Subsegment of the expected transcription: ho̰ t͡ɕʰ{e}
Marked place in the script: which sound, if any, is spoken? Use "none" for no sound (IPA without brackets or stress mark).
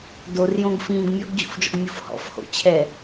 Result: ɛ